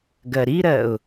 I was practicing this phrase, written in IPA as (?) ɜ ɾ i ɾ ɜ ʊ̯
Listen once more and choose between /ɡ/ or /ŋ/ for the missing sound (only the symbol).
ɡ